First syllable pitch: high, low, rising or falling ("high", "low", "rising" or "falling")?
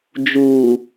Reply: low